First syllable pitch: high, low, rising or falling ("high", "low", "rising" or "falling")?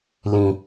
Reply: low